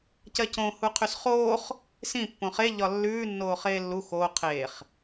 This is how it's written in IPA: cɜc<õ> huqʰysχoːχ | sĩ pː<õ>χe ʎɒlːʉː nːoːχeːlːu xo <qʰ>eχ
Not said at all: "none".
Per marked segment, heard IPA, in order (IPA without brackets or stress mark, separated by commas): õ, õ, qʰ